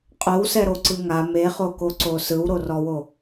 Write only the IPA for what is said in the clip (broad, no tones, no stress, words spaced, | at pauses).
qʼowsɛɾoǀɯ ŋa meχokoǀo sɯwɾorɔwo